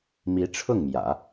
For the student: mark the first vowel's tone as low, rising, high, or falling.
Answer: rising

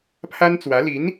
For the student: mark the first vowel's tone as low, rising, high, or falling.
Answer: high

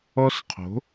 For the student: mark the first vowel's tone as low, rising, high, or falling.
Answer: high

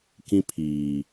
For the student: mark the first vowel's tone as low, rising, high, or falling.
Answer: high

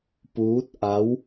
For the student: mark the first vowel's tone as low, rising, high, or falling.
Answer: rising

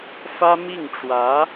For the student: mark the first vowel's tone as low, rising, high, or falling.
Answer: high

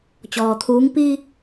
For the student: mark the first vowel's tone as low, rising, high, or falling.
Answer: low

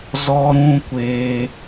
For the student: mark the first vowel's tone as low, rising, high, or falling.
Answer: high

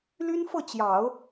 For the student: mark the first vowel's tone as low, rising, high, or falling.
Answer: high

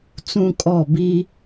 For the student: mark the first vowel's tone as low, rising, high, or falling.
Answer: high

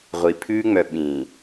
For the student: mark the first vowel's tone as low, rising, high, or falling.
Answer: low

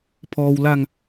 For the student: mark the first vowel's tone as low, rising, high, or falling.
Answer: low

